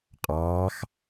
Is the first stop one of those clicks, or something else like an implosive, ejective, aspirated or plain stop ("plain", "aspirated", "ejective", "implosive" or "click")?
ejective